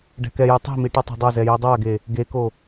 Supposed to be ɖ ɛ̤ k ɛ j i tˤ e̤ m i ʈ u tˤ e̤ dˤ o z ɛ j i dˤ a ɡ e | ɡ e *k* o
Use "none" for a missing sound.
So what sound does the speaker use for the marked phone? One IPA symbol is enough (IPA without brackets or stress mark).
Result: k